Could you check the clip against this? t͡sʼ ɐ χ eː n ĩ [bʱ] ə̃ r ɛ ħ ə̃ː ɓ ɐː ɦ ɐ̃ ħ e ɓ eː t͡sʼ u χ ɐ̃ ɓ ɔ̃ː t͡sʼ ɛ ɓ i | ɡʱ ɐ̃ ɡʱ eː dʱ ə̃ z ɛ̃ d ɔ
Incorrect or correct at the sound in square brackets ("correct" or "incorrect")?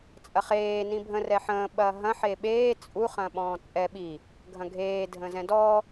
correct